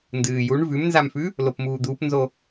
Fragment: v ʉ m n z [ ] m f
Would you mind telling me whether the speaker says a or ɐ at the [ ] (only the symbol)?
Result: a